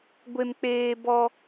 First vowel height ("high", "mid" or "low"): mid